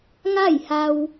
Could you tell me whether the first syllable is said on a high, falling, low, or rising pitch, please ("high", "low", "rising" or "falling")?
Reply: falling